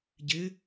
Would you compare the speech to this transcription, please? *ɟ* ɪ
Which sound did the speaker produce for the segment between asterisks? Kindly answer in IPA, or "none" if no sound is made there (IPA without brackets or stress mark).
ɟ